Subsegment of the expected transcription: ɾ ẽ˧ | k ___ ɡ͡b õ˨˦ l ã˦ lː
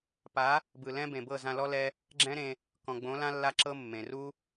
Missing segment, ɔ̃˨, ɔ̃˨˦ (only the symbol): ɔ̃˨